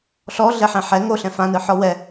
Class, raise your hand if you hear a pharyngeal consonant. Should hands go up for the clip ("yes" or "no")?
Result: yes